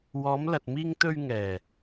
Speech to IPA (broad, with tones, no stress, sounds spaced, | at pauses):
w ɔː˨˧ m l ɐ˨ t̚ m iː˧ ŋ t̪ ɵ˧ ɥ ŋ ɛː˨˩